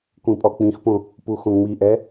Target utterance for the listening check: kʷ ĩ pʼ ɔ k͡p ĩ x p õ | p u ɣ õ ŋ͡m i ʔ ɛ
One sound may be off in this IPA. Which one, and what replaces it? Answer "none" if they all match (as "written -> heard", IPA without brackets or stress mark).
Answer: ɣ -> x